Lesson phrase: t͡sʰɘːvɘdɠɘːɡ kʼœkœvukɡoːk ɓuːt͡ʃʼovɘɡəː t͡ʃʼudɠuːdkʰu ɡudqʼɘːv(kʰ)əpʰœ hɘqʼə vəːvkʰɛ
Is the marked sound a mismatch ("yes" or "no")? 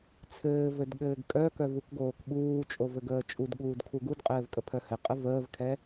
yes